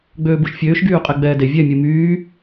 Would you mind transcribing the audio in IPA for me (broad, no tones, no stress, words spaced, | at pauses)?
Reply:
ɡ͡bøːbuʃfʲøːʃ ɡyːqʼeɡ͡bɛːde vʲɛ mʲumyː